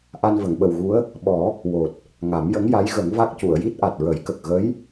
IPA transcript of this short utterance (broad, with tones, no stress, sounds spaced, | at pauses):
ʔ a˧ n v ə˨˩˨ ŋ ɓ ə˨˩ w ɣ u˧˥ ə̯ | ɓ ɔ˨˩˦ | w o˨˩ t̚ | ŋ a˨˩˦ m j ə˧˥ ŋ j a˧˥ j ɣ ə˨˩˦ ŋ v a˦˥ k̚ c u˨˩˨ ə̯ j i˦˥ t̚ ʔ a˨˩ t̚ ɹ ə˨˩˦ j k ə˨˩ k̚ ɣ ə˧˥ j